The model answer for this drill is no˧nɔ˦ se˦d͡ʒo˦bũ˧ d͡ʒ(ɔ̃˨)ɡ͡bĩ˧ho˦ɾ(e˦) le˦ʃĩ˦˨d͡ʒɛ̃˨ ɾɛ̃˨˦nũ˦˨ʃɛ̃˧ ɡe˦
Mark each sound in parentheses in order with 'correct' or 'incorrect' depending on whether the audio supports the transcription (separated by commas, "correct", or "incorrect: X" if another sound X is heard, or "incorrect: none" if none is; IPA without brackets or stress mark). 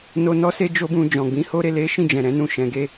correct, incorrect: e˧